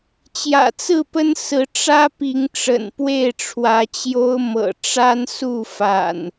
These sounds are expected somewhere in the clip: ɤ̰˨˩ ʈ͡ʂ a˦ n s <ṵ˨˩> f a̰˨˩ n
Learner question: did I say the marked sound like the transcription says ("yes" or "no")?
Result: no